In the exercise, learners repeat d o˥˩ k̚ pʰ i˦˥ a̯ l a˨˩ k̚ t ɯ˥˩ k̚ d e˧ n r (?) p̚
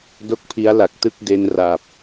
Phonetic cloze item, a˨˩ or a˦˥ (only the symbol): a˨˩